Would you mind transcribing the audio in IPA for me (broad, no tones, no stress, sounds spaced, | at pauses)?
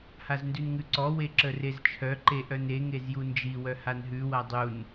h a z n d ʉ n ŋ ʉ ǀ ɔ w e ǁ ə r e z t͡ʃʰ œ ǃ e ʔ œ n e ŋ e z j u n d͡ʒ i w œ h a n ɦ ʉ w a dˤ u n